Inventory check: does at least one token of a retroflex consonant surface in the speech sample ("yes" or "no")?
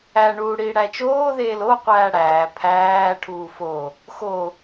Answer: yes